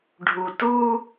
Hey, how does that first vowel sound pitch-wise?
low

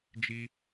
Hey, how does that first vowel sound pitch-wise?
high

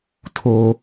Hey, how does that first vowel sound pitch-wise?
high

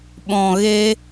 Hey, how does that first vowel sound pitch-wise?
low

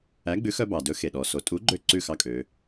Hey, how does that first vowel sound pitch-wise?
rising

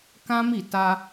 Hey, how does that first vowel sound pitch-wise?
high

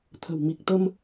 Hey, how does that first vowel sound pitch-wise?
low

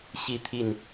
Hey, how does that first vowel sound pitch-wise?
falling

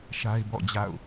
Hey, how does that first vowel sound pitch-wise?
high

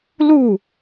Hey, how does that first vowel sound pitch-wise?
falling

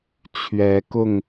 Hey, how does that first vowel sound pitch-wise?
rising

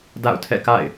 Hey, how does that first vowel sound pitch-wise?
falling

